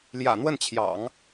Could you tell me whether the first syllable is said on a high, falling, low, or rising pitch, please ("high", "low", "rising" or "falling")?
low